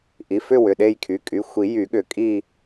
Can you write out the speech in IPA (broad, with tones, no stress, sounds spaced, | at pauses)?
ʔ i˩˧˩ f ʏ˦˨ w ʏ˩˧˩ ɗ e˦˨ j kʰ y˩˧˩ kʼ y˩˧˩ xʷ i˨˩˦ j y˨˩˦ ɠ ʏ˨˩˦ kʼ i˦˨